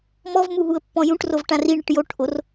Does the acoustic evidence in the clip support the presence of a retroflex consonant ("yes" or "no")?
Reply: yes